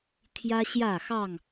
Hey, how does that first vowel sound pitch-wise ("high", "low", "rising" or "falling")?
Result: high